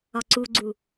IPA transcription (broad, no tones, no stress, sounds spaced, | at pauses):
ɒ ǀ u ɡ͡ǀ u